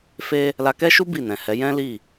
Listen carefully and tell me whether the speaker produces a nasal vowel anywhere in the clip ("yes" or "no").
yes